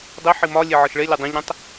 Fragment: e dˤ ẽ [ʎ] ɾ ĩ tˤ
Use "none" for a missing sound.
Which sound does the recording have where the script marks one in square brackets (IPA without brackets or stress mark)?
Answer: ʎ